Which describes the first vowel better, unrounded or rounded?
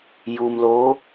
rounded